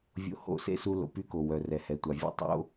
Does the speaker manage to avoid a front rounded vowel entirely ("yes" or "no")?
no